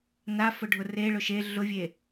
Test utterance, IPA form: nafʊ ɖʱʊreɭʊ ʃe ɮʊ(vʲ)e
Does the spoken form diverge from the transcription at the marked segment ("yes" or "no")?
no